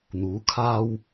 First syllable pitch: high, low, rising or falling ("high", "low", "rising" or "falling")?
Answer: rising